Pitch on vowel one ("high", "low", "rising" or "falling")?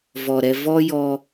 low